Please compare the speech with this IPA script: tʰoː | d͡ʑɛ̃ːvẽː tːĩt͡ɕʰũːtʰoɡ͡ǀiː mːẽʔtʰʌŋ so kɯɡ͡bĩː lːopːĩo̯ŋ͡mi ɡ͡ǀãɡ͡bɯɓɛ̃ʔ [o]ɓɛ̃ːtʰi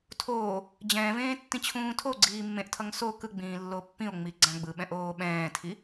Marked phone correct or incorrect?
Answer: incorrect